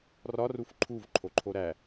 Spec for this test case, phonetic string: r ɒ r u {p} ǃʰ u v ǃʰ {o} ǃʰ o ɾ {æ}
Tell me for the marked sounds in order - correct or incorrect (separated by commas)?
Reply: incorrect, correct, correct